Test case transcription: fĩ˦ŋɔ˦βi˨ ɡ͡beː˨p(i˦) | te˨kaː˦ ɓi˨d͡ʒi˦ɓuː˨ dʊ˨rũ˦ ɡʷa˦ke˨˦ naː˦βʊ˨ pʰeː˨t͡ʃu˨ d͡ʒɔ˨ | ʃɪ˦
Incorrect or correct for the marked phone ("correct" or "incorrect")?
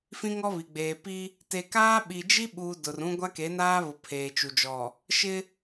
correct